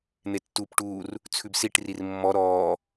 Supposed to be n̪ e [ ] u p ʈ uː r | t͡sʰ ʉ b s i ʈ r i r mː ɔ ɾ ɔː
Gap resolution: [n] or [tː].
tː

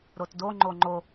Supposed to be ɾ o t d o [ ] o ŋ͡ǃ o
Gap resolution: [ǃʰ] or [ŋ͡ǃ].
ŋ͡ǃ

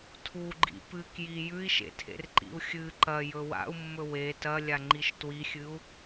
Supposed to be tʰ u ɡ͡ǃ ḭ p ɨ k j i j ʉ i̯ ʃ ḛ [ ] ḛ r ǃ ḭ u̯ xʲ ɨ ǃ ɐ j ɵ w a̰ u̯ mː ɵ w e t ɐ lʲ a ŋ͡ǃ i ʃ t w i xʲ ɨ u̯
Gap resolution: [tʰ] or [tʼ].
tʰ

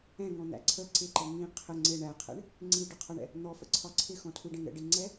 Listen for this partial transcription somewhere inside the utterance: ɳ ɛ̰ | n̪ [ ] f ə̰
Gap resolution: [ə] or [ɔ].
ɔ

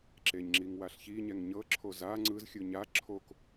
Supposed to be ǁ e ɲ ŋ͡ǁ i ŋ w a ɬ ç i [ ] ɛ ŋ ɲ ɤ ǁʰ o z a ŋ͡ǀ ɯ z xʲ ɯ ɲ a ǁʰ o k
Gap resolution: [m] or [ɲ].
ɲ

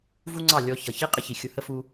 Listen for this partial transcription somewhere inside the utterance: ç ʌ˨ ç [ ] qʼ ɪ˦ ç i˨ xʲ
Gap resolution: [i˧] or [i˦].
i˦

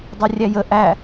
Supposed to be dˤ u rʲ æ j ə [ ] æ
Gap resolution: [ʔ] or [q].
ʔ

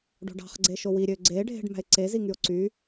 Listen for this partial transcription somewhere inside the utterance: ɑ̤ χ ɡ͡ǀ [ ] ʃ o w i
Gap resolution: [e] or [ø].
e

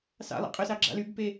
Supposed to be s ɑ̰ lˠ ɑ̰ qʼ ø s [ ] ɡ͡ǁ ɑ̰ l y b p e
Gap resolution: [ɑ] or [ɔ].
ɑ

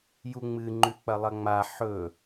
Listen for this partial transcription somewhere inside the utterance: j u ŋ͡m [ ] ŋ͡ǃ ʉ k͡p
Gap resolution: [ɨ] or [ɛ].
ɨ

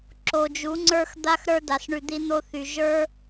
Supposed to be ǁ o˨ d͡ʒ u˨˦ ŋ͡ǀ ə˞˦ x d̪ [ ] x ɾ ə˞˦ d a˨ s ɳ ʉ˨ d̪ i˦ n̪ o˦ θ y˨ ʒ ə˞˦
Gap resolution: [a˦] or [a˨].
a˦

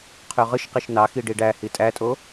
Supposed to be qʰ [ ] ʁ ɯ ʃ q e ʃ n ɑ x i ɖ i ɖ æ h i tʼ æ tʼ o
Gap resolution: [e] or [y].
y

